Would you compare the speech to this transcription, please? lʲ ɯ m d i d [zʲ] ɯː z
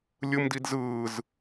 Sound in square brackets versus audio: incorrect: z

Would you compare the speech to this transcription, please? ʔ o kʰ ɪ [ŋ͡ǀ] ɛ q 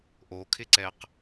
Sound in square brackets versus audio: incorrect: ǀ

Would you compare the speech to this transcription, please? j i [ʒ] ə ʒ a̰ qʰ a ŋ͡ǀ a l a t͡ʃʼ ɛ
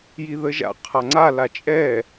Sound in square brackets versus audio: incorrect: ð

